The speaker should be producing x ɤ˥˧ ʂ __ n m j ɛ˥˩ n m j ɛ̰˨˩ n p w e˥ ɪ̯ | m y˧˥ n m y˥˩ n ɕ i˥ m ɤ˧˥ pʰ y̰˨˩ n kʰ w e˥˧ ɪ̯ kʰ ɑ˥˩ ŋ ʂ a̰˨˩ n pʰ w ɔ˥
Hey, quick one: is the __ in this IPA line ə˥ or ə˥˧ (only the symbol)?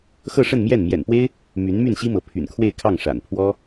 ə˥˧